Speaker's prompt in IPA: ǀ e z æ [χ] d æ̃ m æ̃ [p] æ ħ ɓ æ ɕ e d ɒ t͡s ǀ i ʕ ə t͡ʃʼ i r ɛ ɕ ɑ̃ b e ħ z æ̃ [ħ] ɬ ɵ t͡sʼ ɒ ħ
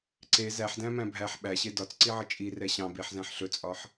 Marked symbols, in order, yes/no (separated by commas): no, no, yes